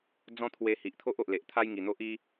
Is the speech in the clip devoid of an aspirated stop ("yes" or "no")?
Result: no